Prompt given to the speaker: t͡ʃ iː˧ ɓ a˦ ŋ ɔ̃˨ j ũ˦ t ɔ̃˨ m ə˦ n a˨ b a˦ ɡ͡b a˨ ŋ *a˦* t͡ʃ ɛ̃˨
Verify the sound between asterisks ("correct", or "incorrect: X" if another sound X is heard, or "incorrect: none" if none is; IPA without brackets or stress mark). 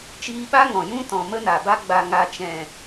incorrect: a˨